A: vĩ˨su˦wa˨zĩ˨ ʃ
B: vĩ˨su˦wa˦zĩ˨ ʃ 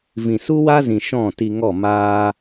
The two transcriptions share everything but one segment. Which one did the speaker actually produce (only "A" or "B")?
B